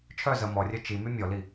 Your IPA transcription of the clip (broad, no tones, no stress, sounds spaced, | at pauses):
t͡ʃʰ œ z ə m ɔ rʲ œ t͡ʃ i m y mʲ ɔ l i